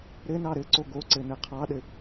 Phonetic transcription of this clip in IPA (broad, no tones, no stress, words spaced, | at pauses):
ɾɘnɑ ɾɘǀo ɡoǀɘ nɘqʰɑɗɘ